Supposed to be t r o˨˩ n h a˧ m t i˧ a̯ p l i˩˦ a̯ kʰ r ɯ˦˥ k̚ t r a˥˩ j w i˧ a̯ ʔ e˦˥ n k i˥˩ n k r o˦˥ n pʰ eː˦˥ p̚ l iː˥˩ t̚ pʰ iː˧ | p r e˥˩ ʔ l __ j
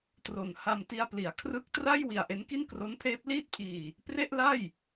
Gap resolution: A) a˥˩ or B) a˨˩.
A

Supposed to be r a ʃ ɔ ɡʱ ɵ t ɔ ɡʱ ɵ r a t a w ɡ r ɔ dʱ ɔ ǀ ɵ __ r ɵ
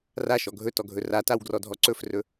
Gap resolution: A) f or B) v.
A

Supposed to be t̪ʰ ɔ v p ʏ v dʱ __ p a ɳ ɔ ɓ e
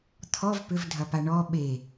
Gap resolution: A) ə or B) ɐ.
B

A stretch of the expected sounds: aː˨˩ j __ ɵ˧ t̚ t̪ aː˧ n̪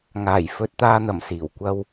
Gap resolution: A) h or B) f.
B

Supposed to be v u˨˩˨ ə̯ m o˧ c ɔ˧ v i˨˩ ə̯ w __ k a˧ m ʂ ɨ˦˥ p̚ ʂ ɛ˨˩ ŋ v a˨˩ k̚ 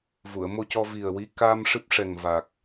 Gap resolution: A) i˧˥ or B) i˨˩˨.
A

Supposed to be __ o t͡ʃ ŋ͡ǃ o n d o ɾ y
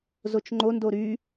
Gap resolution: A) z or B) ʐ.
A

